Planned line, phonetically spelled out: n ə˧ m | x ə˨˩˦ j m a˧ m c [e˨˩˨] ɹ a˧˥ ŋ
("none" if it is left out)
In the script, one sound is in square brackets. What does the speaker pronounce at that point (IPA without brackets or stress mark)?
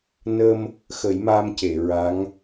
e˨˩˨